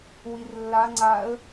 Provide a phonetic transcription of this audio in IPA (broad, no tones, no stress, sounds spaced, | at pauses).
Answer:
w i r lː a ŋ͡ǀ a ə̯